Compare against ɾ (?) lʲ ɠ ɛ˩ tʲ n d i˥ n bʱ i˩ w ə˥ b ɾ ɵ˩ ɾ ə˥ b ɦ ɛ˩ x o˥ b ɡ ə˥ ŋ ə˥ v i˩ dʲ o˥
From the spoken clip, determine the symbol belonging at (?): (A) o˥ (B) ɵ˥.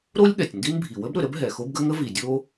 A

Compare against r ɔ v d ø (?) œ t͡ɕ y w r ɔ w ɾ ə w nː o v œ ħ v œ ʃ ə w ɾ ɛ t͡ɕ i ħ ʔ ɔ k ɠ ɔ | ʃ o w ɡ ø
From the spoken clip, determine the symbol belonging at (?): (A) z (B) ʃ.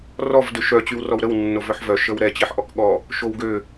B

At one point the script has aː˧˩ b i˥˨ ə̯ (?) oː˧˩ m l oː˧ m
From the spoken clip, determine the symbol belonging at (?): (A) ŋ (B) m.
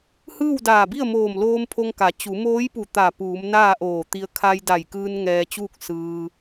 B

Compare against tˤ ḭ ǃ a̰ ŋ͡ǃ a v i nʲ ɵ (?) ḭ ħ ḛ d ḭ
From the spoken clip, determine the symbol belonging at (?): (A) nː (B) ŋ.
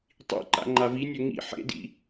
B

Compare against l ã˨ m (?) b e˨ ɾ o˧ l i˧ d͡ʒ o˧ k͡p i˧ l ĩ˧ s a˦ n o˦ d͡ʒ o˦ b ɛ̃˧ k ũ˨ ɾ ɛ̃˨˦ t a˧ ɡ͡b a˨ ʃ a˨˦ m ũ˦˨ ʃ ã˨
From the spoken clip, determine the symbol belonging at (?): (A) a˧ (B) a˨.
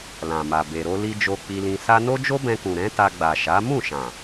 B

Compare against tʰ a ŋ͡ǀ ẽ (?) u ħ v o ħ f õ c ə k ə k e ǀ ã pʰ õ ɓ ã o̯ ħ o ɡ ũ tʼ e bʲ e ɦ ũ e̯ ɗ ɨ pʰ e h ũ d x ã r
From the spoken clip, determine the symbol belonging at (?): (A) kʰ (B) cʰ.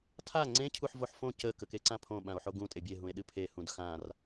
B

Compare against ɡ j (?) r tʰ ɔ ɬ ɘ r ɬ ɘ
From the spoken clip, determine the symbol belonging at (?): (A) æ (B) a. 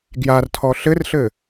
B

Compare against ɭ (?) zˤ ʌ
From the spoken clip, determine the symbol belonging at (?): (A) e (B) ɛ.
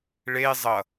A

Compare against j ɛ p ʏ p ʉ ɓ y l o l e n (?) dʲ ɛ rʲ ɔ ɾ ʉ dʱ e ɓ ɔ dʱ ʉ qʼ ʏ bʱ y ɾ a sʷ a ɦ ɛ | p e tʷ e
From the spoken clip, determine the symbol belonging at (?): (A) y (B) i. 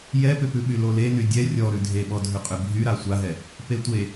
A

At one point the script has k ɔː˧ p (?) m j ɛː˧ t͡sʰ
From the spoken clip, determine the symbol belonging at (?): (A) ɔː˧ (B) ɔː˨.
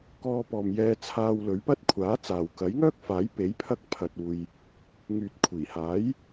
B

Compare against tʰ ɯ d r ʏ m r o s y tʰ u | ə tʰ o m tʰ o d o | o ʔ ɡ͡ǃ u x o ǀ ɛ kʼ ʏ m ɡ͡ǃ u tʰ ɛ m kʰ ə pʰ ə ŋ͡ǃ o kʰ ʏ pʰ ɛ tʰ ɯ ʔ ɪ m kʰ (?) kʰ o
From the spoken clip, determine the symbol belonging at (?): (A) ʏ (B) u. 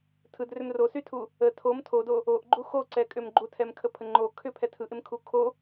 B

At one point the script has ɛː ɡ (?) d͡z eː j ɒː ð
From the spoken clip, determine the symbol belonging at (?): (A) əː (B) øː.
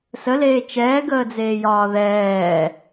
A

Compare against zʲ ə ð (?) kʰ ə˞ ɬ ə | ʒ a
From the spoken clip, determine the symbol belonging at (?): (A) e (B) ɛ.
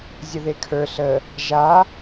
A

